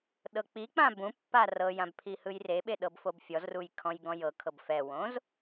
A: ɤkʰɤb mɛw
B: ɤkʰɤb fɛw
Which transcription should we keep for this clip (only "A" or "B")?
B